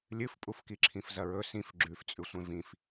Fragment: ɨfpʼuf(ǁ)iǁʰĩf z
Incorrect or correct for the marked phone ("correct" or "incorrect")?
incorrect